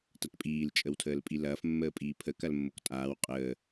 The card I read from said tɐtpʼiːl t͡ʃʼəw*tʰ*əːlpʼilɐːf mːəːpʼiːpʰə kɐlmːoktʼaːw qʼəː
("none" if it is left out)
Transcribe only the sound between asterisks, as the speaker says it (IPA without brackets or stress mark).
tʰ